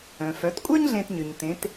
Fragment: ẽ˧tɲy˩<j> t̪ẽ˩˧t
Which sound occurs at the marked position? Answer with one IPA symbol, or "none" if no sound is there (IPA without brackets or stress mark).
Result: ɲ